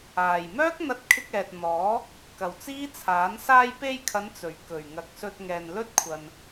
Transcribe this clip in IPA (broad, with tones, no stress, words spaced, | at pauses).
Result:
aː˨˩j mœː˥k̚n̪ɐ˧t̚kʰɪ˧k̚ ɛː˨t̚n̪ɔː˨˥ | kɐ˨˩wt͡siː˥ t͡sʰaː˨˥n saː˧jpe˧jkʰɐ˨˧n t͡sɵ˨˩ɥkɵ˨˩ɥŋɐ˨k̚ sɵ˧t̚ŋɛː˨nlɵ˥t̚kʷʰɐ˨n